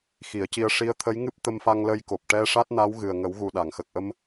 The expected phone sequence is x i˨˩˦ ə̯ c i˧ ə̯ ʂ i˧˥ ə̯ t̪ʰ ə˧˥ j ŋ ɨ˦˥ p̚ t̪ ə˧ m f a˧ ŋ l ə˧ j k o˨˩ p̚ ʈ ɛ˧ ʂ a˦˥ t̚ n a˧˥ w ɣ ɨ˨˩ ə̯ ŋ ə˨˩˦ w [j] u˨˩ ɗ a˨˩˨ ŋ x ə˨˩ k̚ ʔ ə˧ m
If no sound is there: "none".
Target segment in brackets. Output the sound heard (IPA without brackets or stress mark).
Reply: ɣ